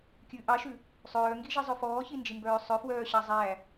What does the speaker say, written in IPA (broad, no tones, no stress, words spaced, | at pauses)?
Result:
kʲʉ ʔɑʃʉ | sˤœːŋɡiʒizˤœ fɔːçind͡ʒimbœː sˤœfwœːɕɑ zˤæ